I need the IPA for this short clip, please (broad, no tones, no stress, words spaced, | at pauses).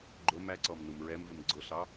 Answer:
ɡ͡ǃʊm æǀɔm numɹɛmvɪm ɡ͡ǀʊɬɑ